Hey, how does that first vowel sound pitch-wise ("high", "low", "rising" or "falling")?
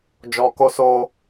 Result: low